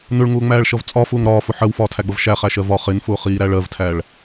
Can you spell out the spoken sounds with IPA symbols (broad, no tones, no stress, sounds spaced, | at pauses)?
n ʊ ɭ ŋ ʊː ŋ͡m æː ɭ ʃ ʌ v t͡sʼ ɒ f ʊː ŋ ɾ ɒː f ʊ ħ ɜ w f ɒː tʰ æ ɡ͡b ʌ v ʃ æ χ æ ʃ ɜ v ɒ χ ɪ n f ʊː χ iː ɾ æ ɭ ɜ v tʰ æ ɭ